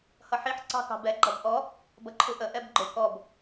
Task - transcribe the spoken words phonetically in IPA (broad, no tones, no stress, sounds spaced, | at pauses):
h ʌ ħ i ħ ǀ ɑ̤ k ɑ̤ b ɛ ɡ͡ǃ ʌ b ʔ ɔ | b ʌ ǃʰ u ʔ ə ʔ ɛ b ɡ͡ǃ ʊ k ɔ b